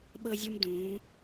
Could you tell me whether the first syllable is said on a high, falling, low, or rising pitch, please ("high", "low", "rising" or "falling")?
high